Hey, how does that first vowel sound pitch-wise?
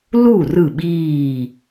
falling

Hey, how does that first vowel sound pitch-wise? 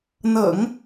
low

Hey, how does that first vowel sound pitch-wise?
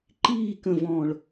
falling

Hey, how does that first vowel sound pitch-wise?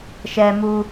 high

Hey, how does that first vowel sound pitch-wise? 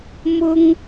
high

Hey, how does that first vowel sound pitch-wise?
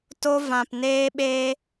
high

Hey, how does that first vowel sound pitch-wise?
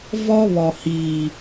high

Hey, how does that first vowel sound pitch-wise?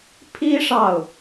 high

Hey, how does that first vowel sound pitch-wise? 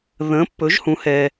rising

